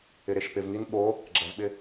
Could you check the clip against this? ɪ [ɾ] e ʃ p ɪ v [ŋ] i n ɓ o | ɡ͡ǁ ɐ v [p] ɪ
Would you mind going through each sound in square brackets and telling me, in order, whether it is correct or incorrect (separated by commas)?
correct, correct, incorrect